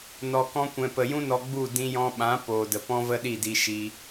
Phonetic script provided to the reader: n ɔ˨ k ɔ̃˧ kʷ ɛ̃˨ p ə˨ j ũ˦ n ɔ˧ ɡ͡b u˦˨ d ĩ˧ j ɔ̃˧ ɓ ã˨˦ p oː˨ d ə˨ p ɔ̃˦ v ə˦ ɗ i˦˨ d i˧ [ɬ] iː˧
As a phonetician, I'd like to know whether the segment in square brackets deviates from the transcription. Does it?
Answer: yes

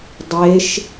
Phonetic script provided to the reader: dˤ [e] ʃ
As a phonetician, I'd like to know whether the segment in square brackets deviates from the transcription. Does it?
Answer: no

